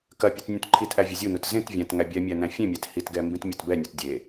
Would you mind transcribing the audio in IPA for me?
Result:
kɐpʲɯt nʲũtǃʰitʔæ vʲɐzʲunut zẽtvʲæ̃t ŋæbʲɛmʲæ næ̃fʲẽmʲæt hitɡɛ mbĩtmʲatbɛnʲɔt dʲe

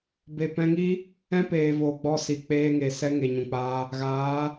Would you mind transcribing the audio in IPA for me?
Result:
be˨pɛ̃˧ŋi˦ | ɛ̃˦peː˨voː˨ ɡ͡bɔ˧si˨ k͡peː˧ŋeː˨ sɛ˦ŋe˨ ɲũ˨k͡paː˧ | ɣaː˨˦

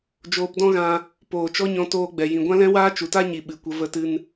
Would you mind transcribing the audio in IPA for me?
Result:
d͡ʒoː˧pdɔ̃˦ɣã˧ | poː˨t͡ʃɔ˦ɲɔ̃˧ toː˧ɡ͡bɛ˨ jĩ˨ɡʷã˦lɛ̃˦ waː˦t͡ʃu˨ta˦ɲi˨ ɓɨ˨kʷə˧ və˧tɨ˧n

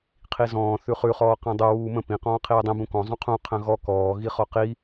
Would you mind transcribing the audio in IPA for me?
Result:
qʰizɔ̃ː θʉχʉ χɔːqĩdˤu wuːmə̃ pĩ qɔ̃ːqʰiːdˤĩ bũkɔ̃ zˤũqʰũ qʰə̃ɣɔ kɔː ɣiχɔqi

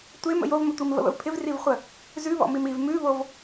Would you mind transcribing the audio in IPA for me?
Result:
tʷem ə̰jovmətʷim və̰βə̰vpʰɪv rivχʷə | zʉβɔ̰mim iv mʉβov

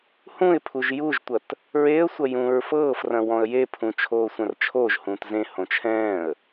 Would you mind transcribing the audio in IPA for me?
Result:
hũɪ̯pʰuʒ juʒtʷɐt | ɹeə̯sʷɐ jũːɹfɤːfrɐ̃ wɔ̃ə̯jepʰũ t͡ʃʰoːsʷɐ̃rt͡ʃʰoːʒhũːt zẽhõ t͡ʃʰɛ̃ːə̯

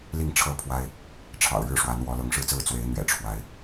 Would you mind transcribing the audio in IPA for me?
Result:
li˥˨ŋʈ͡ʂʰɤ˥˨pʰwa˦ɪ̯ | ʈ͡ʂʰɑ̰˨˩ʊ̯ɻɻ̩˥˨ʂwa˨˦nwɔ˨˦ lɤ˨˦ŋʂɻ̩˥˨t͡sɹ̩˥˨ t͡swe˨˦ɪ̯n̪ɥɛ̰˨˩ ʈ͡ʂʰwa˨˦ɪ̯

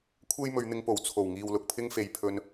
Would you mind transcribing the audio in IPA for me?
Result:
kʷʰe˥jmɵ˨˧ɥn̪ɪ˨˧ŋpo˨˩w t͡sʰo˨˩wŋiː˨w lʊ˨k̚pʰɪ˥ŋfe˨j pʰɵ˧n

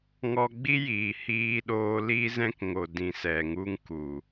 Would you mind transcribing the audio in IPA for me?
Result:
ŋɔ˧ɡ͡bi˦jiː˨ hiː˧ɗoː˧ liː˦zɛ̃˦kŋo˨ dĩ˨sɛ˨ŋu˧ŋku˨

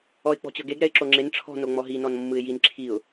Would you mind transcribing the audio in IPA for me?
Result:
ɔɪ̯k͡pɔ̤t͡ɕɤɡeɡ ɾɛɪ̯ǁoŋ͡ǁen ʈ͡ʂʰɔ̤ noŋ͡mɔɦi nɔnmːɯɪ̯jin ǁʰiʊ̯

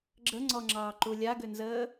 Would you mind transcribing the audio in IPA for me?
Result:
ɡ͡ǁəŋ͡ǀɔŋ͡ǁɑːǃu lʲaɡʏnzəː

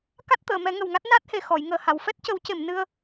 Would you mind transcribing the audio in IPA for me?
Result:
ka˦˥t̚t̪əː˨˩˨mɛ˨˩˦ ŋə˨˩wŋa˦˥t̚ na˦˥t̚he˨˩ xɔ˨˩˨jŋəː˨˩ha˨˩˨w fɛ˦˥t̚cə˨˩˦wce˨˩˨m nɨ˧ə̯

